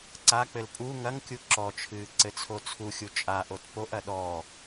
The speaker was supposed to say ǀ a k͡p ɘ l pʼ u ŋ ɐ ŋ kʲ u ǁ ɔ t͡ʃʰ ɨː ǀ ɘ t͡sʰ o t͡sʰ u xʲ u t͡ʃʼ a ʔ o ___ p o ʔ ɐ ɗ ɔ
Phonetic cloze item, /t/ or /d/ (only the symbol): t